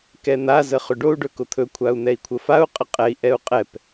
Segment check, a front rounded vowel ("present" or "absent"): absent